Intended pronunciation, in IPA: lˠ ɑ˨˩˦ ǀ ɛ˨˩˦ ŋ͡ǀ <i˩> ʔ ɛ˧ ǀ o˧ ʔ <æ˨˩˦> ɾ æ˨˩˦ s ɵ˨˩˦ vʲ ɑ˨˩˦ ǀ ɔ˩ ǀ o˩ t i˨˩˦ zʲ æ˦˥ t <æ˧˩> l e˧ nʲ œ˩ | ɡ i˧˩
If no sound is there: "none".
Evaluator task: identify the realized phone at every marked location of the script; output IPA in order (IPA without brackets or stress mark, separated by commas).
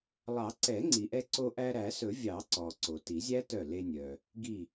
i˩, æ˧, œ˧˩